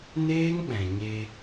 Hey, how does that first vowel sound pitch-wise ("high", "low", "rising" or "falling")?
high